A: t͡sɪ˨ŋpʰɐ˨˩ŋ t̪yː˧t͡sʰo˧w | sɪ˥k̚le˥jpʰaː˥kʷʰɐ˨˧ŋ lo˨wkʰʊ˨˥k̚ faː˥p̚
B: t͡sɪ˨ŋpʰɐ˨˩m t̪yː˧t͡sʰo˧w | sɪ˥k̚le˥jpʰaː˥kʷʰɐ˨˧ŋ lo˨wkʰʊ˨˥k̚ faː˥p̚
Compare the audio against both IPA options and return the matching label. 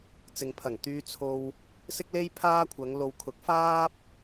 A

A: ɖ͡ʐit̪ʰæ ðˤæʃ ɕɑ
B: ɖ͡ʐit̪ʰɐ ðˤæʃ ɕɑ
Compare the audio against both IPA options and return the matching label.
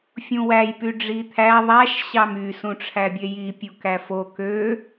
A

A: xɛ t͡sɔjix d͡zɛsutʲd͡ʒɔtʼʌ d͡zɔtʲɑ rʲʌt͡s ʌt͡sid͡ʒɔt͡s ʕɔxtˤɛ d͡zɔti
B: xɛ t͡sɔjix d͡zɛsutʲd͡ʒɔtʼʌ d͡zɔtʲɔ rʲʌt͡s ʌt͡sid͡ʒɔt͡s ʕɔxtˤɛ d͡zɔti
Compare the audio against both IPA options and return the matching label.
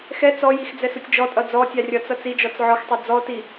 A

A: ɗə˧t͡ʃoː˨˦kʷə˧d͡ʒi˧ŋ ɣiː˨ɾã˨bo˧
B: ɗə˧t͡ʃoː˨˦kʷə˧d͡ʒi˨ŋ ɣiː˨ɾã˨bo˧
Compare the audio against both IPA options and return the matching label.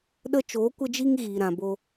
A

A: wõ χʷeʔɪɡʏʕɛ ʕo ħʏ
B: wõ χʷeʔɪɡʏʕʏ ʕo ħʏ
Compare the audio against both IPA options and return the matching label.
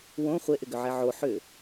A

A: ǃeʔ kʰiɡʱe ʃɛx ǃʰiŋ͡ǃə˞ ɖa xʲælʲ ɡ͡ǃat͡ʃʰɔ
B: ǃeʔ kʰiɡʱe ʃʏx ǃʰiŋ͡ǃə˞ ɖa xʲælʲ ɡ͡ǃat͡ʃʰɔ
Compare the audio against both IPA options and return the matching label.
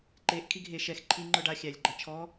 A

